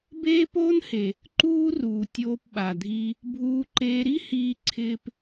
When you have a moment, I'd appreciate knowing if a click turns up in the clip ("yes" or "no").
yes